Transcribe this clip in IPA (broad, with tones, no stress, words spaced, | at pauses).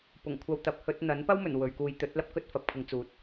pʊ˨˩ŋkʷʰɐ˨˧w t̪ɐ˨p̚ hɵ˧t̚ n̪ɐ˨˥n pɐ˥wmɵ˨˩n wɵ˨ɥkuː˨˧jt̪ɵ˨˥t̚lɐ˧p̚ kɵ˥t̚fɐ˨p̚kʰɪ˨˧ŋt͡suː˨˥t̚